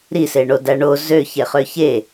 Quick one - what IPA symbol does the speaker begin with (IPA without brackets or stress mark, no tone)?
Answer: ɾ